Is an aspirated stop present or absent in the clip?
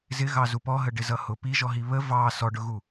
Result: absent